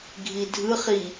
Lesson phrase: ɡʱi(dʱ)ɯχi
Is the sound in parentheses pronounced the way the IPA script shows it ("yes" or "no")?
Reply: yes